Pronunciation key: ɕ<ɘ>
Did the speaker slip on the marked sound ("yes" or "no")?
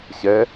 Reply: yes